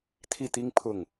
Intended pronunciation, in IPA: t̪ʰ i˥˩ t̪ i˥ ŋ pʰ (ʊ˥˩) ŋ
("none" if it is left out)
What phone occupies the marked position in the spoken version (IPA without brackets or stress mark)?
ʊ˥˩